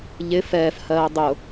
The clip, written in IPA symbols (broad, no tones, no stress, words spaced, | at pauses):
ʎɪ fɛːfhɜː dˤʊ